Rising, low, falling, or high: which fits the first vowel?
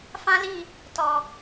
high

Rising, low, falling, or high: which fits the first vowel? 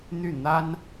falling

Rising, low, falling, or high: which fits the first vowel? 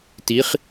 rising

